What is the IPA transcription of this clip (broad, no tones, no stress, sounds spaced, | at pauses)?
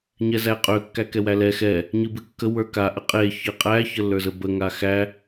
ɲ ɛ z æ qʼ ø kː æ k ɛ w æ l ɛ x ɛ | ɲ ɨ b ɨ kː ə w ə˞ k a ʔ ə qʼ e ç ɨ qʼ æ ç ə lː ə˞ z ə b ə ŋ a x æ